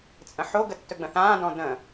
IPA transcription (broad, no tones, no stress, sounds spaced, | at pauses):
t͡sʼ ə̃ ħ o ɡ ə tː ɵ ɡ͡b ə̃ θ ãː d ɔ̃ d ə̃